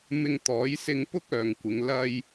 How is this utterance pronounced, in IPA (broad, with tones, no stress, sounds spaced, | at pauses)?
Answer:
m ɪ˧ ŋ t̪ ɔː˨˥ j s ɪ˧ ŋ p ʊ˥ k̚ œː˨ ŋ kʷ ɪ˨˧ ŋ l ɐ˧ j